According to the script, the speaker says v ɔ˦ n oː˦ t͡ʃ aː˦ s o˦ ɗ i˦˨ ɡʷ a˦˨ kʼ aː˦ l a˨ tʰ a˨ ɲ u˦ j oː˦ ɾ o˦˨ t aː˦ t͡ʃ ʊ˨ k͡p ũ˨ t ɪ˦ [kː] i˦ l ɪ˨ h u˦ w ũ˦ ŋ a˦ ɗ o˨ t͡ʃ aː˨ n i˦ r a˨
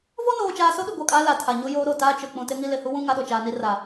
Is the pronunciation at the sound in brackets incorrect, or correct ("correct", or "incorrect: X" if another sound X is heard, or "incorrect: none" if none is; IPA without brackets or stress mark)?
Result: incorrect: ŋ